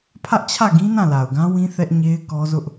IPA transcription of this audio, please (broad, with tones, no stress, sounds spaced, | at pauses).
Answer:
pʰ ä˦ ʔ t͡ɕʰ ä˦˨ ɡ ĩ˦ n ã˦˨ l a˨ ʊ̯ ɡ ã˦ w ĩ˦ θ ɛ˦ ʔ ɲ e˦ ɪ̯ k ɔ˦ z ʊ˦ ʔ